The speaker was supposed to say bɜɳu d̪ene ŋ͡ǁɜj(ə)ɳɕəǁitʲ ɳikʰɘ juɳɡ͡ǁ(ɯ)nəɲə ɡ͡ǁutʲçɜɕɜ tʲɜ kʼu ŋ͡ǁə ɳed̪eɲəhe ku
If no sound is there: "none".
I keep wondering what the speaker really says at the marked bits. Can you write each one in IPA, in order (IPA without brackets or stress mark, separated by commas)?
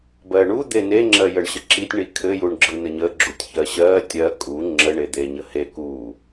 ə, ɯ